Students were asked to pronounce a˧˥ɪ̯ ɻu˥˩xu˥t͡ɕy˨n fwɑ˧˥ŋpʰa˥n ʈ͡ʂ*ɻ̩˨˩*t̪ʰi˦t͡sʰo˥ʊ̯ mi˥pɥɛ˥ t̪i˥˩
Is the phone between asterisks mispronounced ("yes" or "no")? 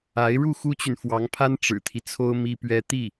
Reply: no